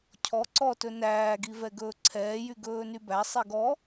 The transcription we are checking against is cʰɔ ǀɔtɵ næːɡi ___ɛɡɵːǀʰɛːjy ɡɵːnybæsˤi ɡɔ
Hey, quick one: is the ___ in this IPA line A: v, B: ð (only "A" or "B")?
A